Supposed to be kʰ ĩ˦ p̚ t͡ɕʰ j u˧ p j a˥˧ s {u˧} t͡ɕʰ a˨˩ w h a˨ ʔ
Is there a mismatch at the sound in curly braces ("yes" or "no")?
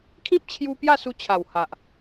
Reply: no